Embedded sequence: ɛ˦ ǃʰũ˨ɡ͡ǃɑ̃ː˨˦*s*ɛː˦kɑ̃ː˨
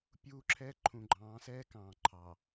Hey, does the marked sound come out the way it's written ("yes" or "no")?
yes